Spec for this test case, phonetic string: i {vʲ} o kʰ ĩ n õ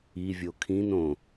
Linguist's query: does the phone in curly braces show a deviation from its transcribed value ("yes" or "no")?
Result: no